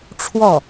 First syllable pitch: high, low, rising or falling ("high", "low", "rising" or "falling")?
falling